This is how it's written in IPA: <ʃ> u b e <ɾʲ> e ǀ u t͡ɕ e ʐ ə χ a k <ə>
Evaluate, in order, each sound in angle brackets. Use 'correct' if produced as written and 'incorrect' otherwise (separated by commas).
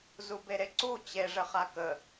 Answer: incorrect, incorrect, correct